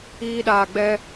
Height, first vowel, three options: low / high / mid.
high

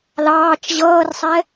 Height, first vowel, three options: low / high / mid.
low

